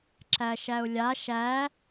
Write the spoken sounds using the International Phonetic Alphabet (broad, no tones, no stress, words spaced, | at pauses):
ǁæʃæʊ̯lʲa ʃæ